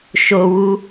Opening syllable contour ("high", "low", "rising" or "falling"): high